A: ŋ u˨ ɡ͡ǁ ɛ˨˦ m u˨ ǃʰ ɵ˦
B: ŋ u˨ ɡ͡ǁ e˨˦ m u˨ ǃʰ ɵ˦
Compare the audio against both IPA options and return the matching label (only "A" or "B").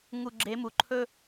B